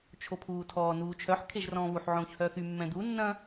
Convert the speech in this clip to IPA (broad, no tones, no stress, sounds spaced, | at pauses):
t͡ʃʰ o pʰ uː tʰ ɔː n uː t͡ʃʰ œ ħ kʰ e ʒ r ɔ̃ː β u ħ ʕ õː ç h œː x y mː ɛ̃ d̪ u nː ɐ̃